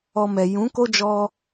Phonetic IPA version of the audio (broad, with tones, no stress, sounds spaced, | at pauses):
ɔ˧ m ɛ˨ j ũ˨˦ k o˦ d͡ʒ ɔ˧